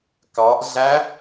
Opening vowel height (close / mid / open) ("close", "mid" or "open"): open